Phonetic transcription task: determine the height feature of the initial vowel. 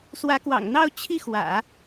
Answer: low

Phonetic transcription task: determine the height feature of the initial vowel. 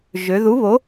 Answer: mid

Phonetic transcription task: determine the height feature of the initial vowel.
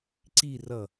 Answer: high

